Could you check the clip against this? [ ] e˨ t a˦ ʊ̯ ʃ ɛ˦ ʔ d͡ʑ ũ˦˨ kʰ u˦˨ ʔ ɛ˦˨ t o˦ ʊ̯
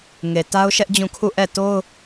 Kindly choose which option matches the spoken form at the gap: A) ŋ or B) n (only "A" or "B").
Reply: A